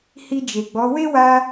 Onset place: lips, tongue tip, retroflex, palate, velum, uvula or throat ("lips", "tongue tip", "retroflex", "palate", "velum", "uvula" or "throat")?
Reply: throat